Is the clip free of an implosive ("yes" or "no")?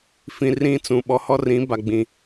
no